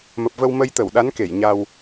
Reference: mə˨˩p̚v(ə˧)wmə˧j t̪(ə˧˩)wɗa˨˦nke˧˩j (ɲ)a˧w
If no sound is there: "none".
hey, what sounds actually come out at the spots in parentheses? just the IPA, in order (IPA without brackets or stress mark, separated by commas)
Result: ə˧, ə˧˩, ɲ